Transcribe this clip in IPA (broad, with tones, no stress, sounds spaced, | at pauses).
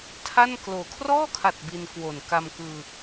tʰ a˥˩ n k l oː˨˩ kʰ r ɔː˥˩ kʰ a˨˩ t̚ b i˧ n k w o˨˩ n k a˧ m k ɯː˧